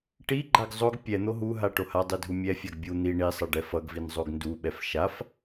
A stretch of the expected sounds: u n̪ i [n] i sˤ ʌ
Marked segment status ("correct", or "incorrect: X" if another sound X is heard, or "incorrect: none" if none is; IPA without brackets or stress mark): incorrect: ɳ